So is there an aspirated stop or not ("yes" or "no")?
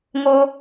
no